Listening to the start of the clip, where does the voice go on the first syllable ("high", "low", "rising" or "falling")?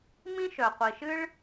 high